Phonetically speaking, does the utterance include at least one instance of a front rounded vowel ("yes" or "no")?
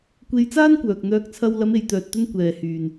yes